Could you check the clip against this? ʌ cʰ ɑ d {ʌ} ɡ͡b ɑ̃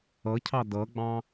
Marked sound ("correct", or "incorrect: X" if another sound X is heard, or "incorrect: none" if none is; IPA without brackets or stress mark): correct